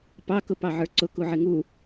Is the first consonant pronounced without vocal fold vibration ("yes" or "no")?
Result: yes